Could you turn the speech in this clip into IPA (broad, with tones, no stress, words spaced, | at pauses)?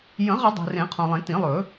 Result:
jə̃˨˩˦ʁə˨˩˦ dˤe̤˨rẽ˨˩˦ qʰõ˨lˠẽ˨˩˦tĩ˨˩˦lˠɵ˨˩˦